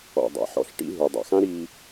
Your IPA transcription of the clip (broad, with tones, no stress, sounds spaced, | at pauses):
ɔ̰˨ dˤ a̰˨ ħ ɔ̰˧ ɬ ʈ ḭ˦ ɦ u˨ dˤ a̰˨ x ã˦ ɾ i˧